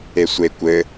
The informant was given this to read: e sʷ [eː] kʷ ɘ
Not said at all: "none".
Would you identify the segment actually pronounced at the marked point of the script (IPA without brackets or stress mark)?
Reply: e